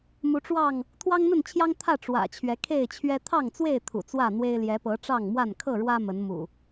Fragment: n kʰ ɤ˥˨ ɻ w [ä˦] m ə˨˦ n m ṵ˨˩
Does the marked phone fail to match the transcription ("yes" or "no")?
no